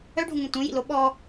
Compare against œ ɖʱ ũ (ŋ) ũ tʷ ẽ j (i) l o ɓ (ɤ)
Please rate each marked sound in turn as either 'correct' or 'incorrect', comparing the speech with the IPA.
correct, incorrect: ḭ, incorrect: ɔ

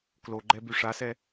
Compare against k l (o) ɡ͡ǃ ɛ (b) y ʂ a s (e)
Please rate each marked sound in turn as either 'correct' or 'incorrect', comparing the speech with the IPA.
correct, correct, incorrect: ɛ

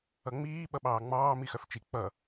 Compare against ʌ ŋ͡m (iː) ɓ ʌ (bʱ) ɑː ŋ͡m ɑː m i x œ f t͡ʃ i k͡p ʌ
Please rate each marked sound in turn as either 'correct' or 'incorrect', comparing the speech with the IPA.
correct, incorrect: ɓ

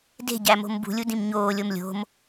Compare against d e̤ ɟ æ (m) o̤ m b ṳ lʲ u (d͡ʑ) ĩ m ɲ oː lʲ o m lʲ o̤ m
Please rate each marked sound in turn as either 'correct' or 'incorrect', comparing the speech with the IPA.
correct, incorrect: d

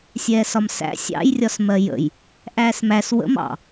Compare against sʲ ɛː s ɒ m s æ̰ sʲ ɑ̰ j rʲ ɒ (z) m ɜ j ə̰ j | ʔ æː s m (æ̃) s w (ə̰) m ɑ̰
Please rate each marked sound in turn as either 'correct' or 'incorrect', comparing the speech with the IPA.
incorrect: s, incorrect: æ, correct

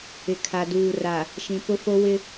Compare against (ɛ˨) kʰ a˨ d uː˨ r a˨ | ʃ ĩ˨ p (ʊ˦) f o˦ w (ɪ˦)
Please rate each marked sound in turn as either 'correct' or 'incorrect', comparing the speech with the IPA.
incorrect: ɪ˨, correct, correct

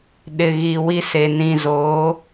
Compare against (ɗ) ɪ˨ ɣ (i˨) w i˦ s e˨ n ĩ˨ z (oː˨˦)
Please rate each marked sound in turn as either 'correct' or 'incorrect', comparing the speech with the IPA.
correct, correct, correct

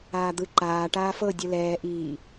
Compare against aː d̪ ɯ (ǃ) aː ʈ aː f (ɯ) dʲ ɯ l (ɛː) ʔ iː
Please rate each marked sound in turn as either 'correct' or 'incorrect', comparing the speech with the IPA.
correct, incorrect: ɤ, correct

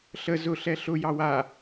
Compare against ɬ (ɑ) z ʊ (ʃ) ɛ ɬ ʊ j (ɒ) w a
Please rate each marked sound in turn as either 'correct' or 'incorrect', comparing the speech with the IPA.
incorrect: ə, incorrect: ɬ, incorrect: ɑ

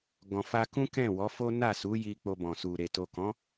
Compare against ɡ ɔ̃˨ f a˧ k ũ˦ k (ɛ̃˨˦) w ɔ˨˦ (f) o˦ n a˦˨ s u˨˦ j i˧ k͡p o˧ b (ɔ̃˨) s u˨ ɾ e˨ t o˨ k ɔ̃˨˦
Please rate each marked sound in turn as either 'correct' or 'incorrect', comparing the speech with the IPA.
incorrect: ɛ̃˦˨, correct, correct

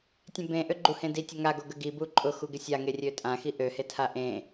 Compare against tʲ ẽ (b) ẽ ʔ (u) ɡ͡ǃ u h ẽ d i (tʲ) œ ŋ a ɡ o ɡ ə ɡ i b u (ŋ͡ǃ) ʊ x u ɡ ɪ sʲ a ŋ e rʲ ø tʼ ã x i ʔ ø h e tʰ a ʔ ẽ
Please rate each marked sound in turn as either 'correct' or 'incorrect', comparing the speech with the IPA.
correct, incorrect: ø, correct, incorrect: ǃʼ

